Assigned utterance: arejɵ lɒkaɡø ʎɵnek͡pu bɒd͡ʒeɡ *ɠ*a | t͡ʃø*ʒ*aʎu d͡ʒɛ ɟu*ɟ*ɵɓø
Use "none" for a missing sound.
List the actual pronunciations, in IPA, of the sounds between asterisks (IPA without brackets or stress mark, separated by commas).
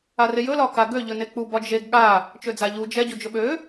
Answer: ɠ, d͡z, d͡ʒ